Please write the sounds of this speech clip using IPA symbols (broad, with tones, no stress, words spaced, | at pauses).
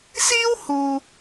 siː˥w huː˧